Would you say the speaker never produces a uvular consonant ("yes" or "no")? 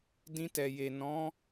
yes